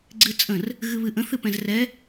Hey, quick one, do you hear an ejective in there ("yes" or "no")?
yes